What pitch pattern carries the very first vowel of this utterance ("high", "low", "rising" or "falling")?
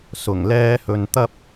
low